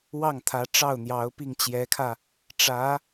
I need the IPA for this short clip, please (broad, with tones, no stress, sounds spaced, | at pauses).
w ɑ˥˩ ŋ t̪ʰ ä˧˥ ʈ͡ʂ ɑ˥˩ ʊ̯ n̪ j ɑ˧˥ ʊ̯ p i˥˩ ŋ t͡ɕ j ɛ˧˥ kʰ ä˧ | ʈ͡ʂ ä˧˥